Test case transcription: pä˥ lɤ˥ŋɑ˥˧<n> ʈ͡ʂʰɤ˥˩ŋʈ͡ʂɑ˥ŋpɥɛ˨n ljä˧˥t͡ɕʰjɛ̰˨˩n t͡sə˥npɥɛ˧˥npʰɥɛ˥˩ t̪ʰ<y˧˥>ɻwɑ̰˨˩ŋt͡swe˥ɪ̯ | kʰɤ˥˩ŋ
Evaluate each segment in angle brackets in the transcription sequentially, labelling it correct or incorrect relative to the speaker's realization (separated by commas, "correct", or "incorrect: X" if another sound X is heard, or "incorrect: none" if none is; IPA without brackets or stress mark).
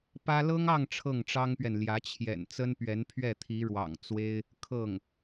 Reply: incorrect: ŋ, incorrect: i˧˥